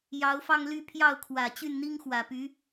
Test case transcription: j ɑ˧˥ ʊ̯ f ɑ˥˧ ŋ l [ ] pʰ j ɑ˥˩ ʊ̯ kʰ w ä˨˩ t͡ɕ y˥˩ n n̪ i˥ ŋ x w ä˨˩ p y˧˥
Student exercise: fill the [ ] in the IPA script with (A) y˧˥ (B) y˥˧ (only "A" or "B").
B